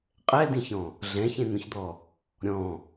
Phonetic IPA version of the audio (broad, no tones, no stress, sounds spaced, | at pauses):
qʼ ɛ d ĩ ç ɔ̃ | ɮ ɛ̃ ç ẽ n̪ õ ç d̪ ɔ | ɾʲ ɔ̃